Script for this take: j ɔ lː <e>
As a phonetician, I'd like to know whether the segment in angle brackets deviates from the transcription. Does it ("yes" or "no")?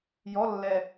yes